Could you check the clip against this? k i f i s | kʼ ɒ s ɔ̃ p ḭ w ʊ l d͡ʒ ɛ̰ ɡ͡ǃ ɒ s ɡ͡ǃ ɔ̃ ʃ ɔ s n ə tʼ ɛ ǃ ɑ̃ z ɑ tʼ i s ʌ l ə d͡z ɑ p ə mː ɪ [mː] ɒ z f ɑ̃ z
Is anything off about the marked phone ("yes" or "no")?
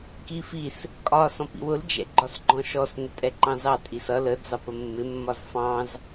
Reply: no